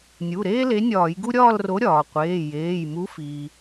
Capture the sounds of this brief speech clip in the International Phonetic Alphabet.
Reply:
nʲ u˩˧˩ ɾ eː˥ l e˨˥ nʲ ɒː˧˩˧ j ɡ u˥ ɾʲ ɒː˥˧ l r o˨˥ ɾʲ ɒː˩ qʷ eː˩˧˩ j eː˩˧˩ j m u˨˥ f iː˩

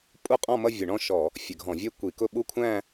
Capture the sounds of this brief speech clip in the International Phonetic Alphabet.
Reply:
pʼ u˥˧ qʼ ɔ̃˥˧ m ʌ˥˧ vʲ ʊ˧˩˧ ɳ ɔ̃˥˧ ʃ ɔ˧˩˧ | fʲ ə˧˩˧ ɡʱ ɔ̃˧˩˧ vʲ ɛ˥˧ kʷ i˧˩˧ k ʊ˥˧ ɓ u˥˧ kʷʰ æ̃˥˧

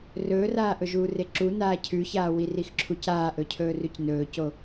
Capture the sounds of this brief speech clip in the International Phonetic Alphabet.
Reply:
r ɵː r aː ʔ ɵ ʒ uː r e ǁ u n aː cʰ ʉ ç aː w i r i x ǁʰ u c aː ʔ ɵ cʰ ɵː r ʉ c n ɵː c o

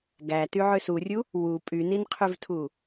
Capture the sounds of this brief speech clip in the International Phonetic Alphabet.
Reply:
ɡ æ t y ʕ ø s u rʲ u | w u pʼ y n i n qʰ y v tʰ u

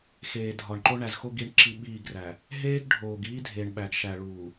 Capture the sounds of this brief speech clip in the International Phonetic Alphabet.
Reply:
x eː˨ dʱ ɒ˨ ɳ ǃ o˦ ɳ æ˨ z x o˦ ɡ i˦ ɳ ǁ i˦ ɓ iː˦˨ ɡ r æ˨ | ɦ eː˦ ɡ ɖʱ oː˨ ɡ iː˦ dʱ e˨ ɳ ɓ æ˨ ɡ ʃ æ˨ ɭ uː˨

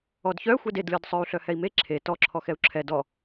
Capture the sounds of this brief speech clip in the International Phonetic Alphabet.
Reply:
ɔ d ç œ xʷ ɛ d e d lʲ ɔ d sˤ œ u̯ ɬ œ h ɛ i̯ m e ǁʰ e t ɔ ǁʰ ɔ x ɛ u̯ ǁʰ ɛ d ɔ

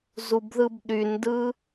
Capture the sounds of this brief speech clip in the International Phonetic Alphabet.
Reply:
z u b ð ɯ b ɗ y n d ɯ

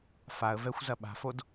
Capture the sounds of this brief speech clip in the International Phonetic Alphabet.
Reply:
f a ə̯ v ɛ xʷ z ɐ ɓ a̤ f o d

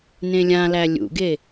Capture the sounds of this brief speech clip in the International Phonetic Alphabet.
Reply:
n ẽ lʲ ã l æ lʲ ṵ ɡ e

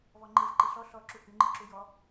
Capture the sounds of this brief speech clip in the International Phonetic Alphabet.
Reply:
β ɔ ŋ͡ǃ e v ǃ i ɬ ɔ ɬ ɔ ǁ u h ʉ ŋ͡ǃ i ǁ u j ɔ

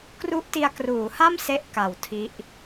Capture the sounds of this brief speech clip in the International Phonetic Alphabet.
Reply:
k r u˦˥ ʔ t i˧ a̯ k r uː˩˦ h a˥˩ m s e˦˥ ʔ k a˨˩ w tʰ i˦˥ ʔ

